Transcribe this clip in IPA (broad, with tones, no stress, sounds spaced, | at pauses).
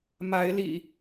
m a˨˦ ɪ̯ l ḭ˨˩